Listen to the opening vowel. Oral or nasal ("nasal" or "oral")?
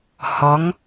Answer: oral